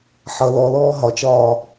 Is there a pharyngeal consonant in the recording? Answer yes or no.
yes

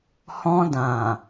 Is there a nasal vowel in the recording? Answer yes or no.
yes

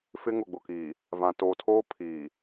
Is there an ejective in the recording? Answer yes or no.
no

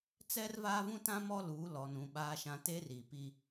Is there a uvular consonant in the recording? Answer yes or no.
no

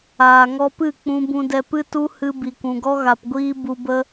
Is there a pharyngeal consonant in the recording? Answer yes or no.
no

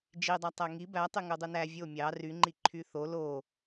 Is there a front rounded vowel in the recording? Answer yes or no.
yes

